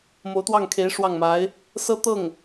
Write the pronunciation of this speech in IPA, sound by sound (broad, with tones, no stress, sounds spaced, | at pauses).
m o˧˥ ʊ̯ t̪ w ɑ˥˩ ŋ kʰ e˧˥ ɪ̯ ʂ w ɑ˥˩ ŋ m a˧˥ ɪ̯ | s ɤ˥ t̪ ɤ˥˩ ŋ